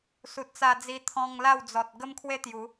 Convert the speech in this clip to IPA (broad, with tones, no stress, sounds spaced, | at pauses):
s u˨ t̚ t͡s a˧ d͡z i˧ t̪ʰ ɔ̃˧ ŋ l a˥˧ w d͡z ɔ˨ t̚ ɡ ə˦ m kʰ w e˦ t̪ j u˨˦